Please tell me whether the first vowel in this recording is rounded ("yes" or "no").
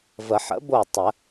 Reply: no